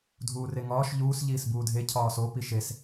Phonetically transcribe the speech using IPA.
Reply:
dʱ uː r e ŋ ɒː ʃ ʎ uː s ʎ iː s b uː dʱ e cʰ ɒː s o p i ʃ e s

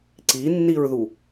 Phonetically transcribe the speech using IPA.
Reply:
ǀ i nː i ɹ ð u

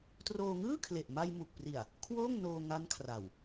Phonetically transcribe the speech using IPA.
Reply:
t r oː˧ ŋ ɯː˥˩ kʰ l e˨˩ ʔ m a˧ j m u˨˩ k̚ p r i˨˩ a̯ | kʰ w oː˥˩ ŋ n oː˧ ŋ a˦˥ n kʰ r a˨˩ w

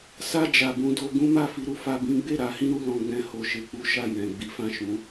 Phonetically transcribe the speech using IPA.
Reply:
s a˧ d͡ʒ a˨ b ũ˧ d o˧ ɡ ũ˦ m a˦˨ f i˧ ɾ u˧ f a˧ b ĩ˦ ɡ͡b e˦˨ ɾ a˧ h ĩ˦ ɾ u˧ l ɔ̃˧ ɡ͡b ɛ̃˧ h o˨ ʃ e˧ k͡p u˦ ʃ a˦˨ j ɛ̃˨ ɡ͡b i˨˦ f ã˦˨ ʃ ũ˨˦

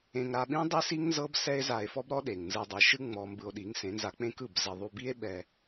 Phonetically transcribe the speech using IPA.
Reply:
ẽ˧ ŋ ɾ a˧ ɓ ĩ˦ dˤ i˦ s i˦ ŋ n z ɤ˦ b s ɛ˦ e̯ z a˧ e̯ f ɔ˦ b ɾ ɔ˦ ɗ e˨ ŋ n z ɯ˧ dˤ ɯ˨˦ ʃ ɯ˦ ŋ͡m ɔ˧ m b ɯ˧ o̯ ɗ i˨˦ ŋ s ẽ˨˦ n z a˧ k͡p ẽ˦ k ɯ˦˨ b z ɛ˧ ðˤ u˧ b i˦ e̯ ɓ ɛ˧

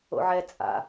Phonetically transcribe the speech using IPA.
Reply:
o̰ ʕ ɛ t͡sʼ a̰

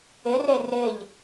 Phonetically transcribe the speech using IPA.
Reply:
ɪ r e r ɪ ʎ

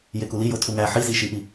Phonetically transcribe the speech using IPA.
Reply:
j e k u l i j o tʰ u ŋ æ ħ i z i ʃ i ʔ i

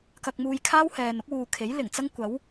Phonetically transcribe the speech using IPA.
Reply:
k ɐ˧ k̚ m uː˧ j kʰ aː˥ w h ɛː˨ n ʊ˨˥ k̚ w uː˨ kʰ e˨˥ j l ɪ˨˩ ŋ t͡s ɐ˥ ŋ kʷ ɐ˨˥ w

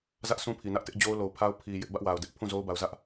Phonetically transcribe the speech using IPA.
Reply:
z ä˦ ʔ s ũ˦ pʰ i˨ n ä˦ ʔ t ɪ˦ ʔ d͡ʑ o˦ ʊ̯ l o˨ ʊ̯ pʰ a˦ ʊ̯ pʰ i˨ j ɪ˦ ʔ b ä˦ ʔ w a˨ ʊ̯ d ɛ˦ ʔ pʰ ũ˦˨ z o˦ ʊ̯ b a˨ ʊ̯ z ä˦ ʔ

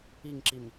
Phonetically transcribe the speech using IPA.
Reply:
i ŋ ǁ i m

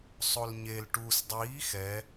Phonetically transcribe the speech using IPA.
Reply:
sˤ o l ɲ e l ʈ u s dˤ iː x ɛ

